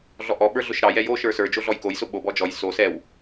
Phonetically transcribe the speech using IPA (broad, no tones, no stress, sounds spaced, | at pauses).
ɮ ɔ ʔ ɔ ɓ ə˞ ɮ ʊ ʃ ɾ ɑ j ɛ j o ʃ ə˞ s ə˞ d͡ʒ o ɮ ɔ j k o j s ʊ ɓ o b ɔ d͡ʒ ɔ j s o s ɛ w